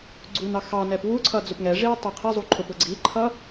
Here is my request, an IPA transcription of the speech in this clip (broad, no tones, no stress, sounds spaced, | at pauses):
ɡ͡ǀ u n ɑ x ɑ n ɛ p w u ǀʰ ʌ d͡z ʊ p ŋ ɛ ʐ i w tˤ ʌ qʰ ɛ zˤ u ǃʰ ʊ p ʊ ɡ͡ǀ i ǃʰ ʌ